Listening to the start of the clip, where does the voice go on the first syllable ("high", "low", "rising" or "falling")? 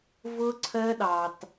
high